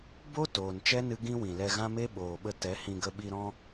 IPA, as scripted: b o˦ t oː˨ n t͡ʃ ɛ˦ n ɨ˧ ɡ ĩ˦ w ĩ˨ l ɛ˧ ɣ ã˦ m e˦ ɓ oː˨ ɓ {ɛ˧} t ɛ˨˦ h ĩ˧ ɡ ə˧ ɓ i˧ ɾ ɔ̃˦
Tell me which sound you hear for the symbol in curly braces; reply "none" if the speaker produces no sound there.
ə˧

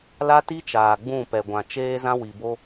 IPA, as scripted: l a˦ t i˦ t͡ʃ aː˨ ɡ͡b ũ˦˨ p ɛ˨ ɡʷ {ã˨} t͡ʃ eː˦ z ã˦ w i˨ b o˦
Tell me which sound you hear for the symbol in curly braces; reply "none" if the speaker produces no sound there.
ã˨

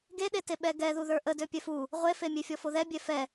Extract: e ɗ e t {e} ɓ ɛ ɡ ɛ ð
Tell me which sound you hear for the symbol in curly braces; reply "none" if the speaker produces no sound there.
e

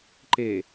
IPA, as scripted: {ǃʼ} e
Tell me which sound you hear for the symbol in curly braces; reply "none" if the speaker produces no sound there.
ǃ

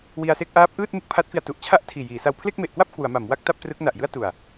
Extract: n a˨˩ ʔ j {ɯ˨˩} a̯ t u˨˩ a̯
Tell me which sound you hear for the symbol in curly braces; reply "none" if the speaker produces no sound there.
ɯ˥˩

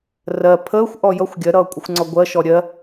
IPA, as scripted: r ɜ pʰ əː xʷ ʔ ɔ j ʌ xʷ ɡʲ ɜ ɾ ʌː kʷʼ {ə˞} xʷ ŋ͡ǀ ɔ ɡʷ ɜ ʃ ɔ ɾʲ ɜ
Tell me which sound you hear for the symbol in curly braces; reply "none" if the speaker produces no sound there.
ʌ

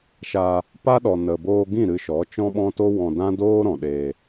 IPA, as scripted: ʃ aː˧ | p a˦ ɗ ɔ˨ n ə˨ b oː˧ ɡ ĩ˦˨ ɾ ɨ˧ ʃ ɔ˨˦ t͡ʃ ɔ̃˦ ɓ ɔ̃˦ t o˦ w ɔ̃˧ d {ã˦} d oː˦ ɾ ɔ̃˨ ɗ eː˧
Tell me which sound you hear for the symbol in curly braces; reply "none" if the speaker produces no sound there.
ã˦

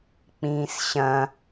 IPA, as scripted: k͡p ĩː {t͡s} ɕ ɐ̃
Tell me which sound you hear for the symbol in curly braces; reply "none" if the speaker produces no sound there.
s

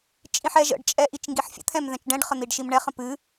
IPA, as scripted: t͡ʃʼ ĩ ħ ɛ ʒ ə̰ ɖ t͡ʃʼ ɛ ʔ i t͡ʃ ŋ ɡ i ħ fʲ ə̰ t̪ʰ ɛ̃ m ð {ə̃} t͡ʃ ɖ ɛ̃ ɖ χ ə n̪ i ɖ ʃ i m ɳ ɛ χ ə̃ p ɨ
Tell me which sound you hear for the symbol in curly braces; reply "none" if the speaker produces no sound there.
ɛ̃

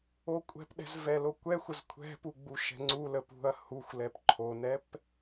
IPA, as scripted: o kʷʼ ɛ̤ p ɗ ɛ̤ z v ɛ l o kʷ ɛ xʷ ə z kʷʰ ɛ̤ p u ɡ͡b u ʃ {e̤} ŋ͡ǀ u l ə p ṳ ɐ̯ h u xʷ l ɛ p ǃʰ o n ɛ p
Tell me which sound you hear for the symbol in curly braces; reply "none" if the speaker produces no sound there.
ɛ̤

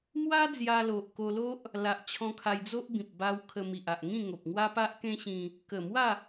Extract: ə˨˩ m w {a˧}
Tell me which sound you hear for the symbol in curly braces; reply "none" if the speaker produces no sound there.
a˥˧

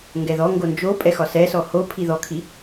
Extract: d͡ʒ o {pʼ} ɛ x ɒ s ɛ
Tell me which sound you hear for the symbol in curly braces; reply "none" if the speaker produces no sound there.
pʼ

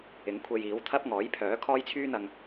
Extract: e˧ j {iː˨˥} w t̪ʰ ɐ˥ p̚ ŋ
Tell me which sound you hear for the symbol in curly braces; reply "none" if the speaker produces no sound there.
iː˨˥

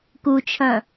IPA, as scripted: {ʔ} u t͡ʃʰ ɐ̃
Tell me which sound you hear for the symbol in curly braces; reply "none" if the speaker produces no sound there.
k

